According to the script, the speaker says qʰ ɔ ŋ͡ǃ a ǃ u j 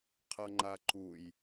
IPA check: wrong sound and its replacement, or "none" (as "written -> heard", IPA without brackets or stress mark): ɔ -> ʌ